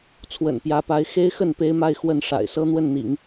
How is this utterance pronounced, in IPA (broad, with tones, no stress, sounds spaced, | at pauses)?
t͡sʰ w ə̰˨˩ n p j ä˧˥ p a˧˥ ɪ̯ x e˥ ɪ̯ x ə˥˩ n p e˥ ɪ̯ m a˥˧ ɪ̯ x w ə˥˩ n ʂ a̰˨˩ ɪ̯ s ɤ˥ n̪ w ə˥˩ n n̪ ḭ˨˩˦ ŋ